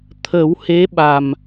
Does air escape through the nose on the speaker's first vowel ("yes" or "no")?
no